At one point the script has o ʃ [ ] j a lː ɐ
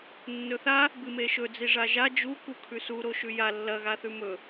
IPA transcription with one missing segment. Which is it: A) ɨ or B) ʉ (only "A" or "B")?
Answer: B